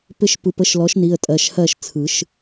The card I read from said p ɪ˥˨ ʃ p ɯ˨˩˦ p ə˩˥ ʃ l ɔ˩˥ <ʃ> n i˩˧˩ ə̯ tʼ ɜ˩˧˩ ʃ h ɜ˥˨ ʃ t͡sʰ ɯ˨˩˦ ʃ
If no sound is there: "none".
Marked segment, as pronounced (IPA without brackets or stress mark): ʃ